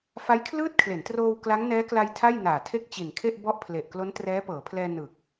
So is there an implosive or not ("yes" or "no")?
no